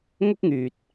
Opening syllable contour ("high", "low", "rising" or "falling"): high